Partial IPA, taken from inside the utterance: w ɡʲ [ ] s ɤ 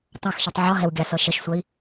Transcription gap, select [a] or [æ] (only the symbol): a